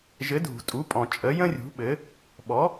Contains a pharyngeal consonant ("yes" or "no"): no